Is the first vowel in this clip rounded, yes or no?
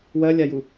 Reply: no